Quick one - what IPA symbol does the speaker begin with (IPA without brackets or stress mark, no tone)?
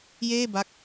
j